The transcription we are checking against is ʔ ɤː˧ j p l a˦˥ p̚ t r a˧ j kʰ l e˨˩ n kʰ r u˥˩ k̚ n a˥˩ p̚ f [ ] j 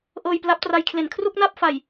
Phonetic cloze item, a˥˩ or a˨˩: a˨˩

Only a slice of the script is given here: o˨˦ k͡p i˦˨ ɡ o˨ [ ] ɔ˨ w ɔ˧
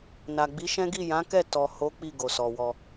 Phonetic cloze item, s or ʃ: s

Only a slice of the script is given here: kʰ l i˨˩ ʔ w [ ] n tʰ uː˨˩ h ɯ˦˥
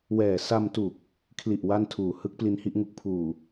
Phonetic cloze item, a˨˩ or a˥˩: a˥˩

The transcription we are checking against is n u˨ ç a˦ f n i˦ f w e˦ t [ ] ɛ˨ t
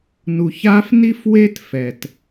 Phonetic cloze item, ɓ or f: f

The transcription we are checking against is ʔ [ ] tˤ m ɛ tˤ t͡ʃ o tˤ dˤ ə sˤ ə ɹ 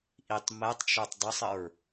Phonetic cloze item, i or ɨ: i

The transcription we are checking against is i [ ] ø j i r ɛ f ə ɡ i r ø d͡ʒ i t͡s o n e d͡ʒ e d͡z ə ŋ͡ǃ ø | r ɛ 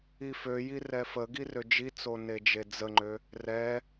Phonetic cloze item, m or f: f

